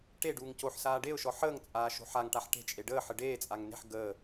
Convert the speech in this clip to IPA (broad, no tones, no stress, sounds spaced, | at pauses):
ʈ e ɖ uː ŋ c o ħ s aː ɖ e ʊ̯ ʃ ɔ ħ əː ŋ t͡sʼ aː ʃ o̤ ħ a ŋ ʈ a ħ ʈ e̤ t͡ʃʼ e ɖ əː ħ ə ɖ eː t͡sʼ a ŋ n e̤ ħ ɡ əː